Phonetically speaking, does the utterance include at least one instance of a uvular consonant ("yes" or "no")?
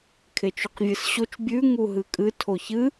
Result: yes